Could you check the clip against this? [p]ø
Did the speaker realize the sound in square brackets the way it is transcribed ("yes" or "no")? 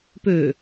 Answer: yes